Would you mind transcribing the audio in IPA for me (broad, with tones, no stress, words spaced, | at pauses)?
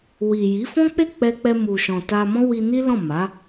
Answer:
wi˨ji˨˦ fɔ̃˦k͡pe˦˨k͡pɛ˧k͡pɛ˧ mu˨ʃɔ̃˨ ta˧ mɔ̃˦wi˧ni˦ lɔ̃˦˨ma˨˦